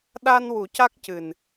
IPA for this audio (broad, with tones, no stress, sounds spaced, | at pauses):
ɗ a˧ n w u˨˩˦ c a˦˥ k̚ c ɨ˨˩ n